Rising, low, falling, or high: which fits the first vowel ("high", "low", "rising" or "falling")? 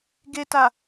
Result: low